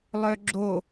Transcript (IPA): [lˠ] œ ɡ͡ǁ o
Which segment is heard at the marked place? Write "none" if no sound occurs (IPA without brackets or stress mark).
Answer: lˠ